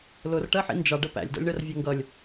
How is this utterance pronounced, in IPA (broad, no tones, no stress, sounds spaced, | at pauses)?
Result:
l ʊ r ʈ ɜ ħ ḭ n d͡ʒ ɑ ɖ ə p æ̰ lʲ d ɔ̰ lʲ ɳ ɜ r vʲ ɜ ŋ ɡ ʌ lʲ